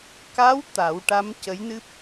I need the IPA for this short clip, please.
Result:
k a˧˥ w t̪ a˨˩˦ w ʈ a˧˥ m c ə˧˥ j n ɨ˦˥ p̚

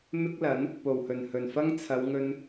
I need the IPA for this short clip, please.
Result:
m ɪ˥ k̚ l ɐ˨˥ n | p o˨˩ w h ɵ˨˩ n h ɵ˨˩ n f ɐ˥ ŋ t͡sʰ ɐ˨˧ w ŋ ɵ˧ n

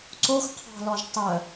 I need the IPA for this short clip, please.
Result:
ǀ o x qʰ ɑ̤ l ɔ ʒ tˤ œ

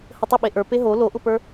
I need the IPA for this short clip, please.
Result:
h ə tˤ ə ɓ e ʔ ə˞ p e ɦ o l o ʔ ʊ p ə˞

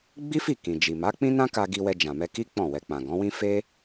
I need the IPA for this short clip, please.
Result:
ɡ͡b i˦ f i˦˨ k ĩ˨ d͡ʒ i˨ m a˨˦ k͡p ĩ˦ n ã˦ k a˧ ɡ i˧ w ɛ˧ d͡ʒ ã˨ m ɛ˧ k i˦ k͡p ɔ̃˦˨ w ɛ˧ k͡p ã˨ ɡ ɔ̃˨˦ w ĩ˦ f e˦

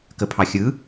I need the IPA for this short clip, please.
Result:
k ə pʰ ɑ xʲ ɯ

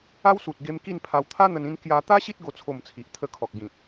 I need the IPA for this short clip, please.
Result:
a˦ w s u˨ t̚ ɡ e˧ m k i˥˧ n pʰ a˧ w t̪ʰ a˦ n̪ ə˧ n ĩ˧ n k j a˧ t̪ a˦ ɕ i˦ t̚ ɡ o˥˧ t͡sʰ o˥˧ m t͡sʰ i˨ ʔ t̪ʰ ə˦ kʰ ɔ˨ k̚ ɡ ĩ˨ t̚

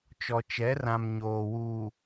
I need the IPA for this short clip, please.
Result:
t͡ʃ ɔ˨ t͡ʃ ɛ˨˦ r ã˨ m ɲ oː˨ w uː˨

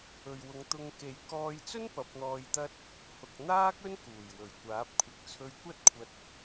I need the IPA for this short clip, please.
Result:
ɵ˨ ɥ w ʊ˨˧ ŋ t̪ ʊ˧ ŋ k e˨˧ j k ɔː˧ j t͡s ɵ˥ n p ɐ˨˥ p̚ n̪ ɔː˧ j t̪ ɐ˥ t̚ | h ʊ˨ k̚ n̪ aː˥ k̚ ɵ˥ n k uː˨˩ j w ɵ˨˩ ɥ kʷ aː˨˥ p̚ kʷʰ ɪ˨˥ k̚ t͡sʰ ɵ˧ ɥ kʷ ɐ˥ t̚ kʷʰ ɐ˧ t̚

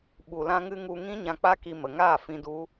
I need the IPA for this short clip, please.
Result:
ɓ u˨ l ã˧ ŋ ɨ˧ ŋ u˧ ŋ ĩ˦ ɲ ã˧ k͡p a˦ k i˧ m ə˨ ŋ aː˦˨ f ĩ˧ d u˦

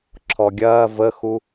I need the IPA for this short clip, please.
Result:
ǁʰ ɔ ɡʲ ɐː v ə x u

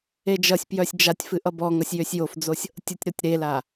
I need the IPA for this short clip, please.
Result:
e d͡ʒ ʌ sʲ p j œ sʲ d͡ʒ a tʲ f ɨ ʔ ʌ b ɔ ŋ ʌ sʲ j ø sʲ j o f d͡z o sʲ | tʲ ə tʲ ɾ ɔ tʲ ɾ e l a

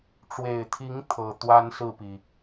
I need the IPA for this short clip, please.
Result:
ʈ͡ʂ w e˨˩ ɪ̯ t̪ʰ i˧˥ ŋ t̪ʰ ɤ˨˩ t̪ w a˥ n s ɹ̩˥˩ p i˩

